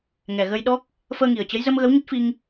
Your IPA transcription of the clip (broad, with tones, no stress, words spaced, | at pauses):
ŋɛ˨˩ɣə˧jɗɔ˦˥k̚ | fəː˧ŋi˨˩ə̯t͡ɕə˨˦j zə˧mɣə˨˦wɲə˦˥t̚fi˧ŋ